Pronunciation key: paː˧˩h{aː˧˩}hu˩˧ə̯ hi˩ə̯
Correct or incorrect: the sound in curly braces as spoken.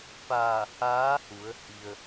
incorrect: aː˧˥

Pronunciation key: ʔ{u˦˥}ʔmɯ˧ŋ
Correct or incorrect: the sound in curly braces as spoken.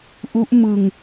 correct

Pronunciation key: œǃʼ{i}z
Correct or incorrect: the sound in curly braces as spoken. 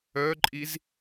correct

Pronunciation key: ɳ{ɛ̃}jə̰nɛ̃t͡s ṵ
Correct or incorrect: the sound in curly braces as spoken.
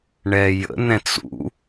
incorrect: ɛ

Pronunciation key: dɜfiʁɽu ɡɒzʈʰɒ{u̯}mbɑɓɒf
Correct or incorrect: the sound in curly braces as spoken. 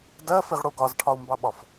correct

